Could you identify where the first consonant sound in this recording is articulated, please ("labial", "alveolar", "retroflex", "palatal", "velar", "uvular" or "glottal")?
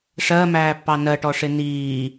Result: retroflex